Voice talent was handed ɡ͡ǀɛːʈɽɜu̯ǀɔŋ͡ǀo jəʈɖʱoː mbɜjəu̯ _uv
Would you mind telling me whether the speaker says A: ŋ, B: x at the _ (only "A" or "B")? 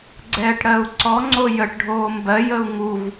A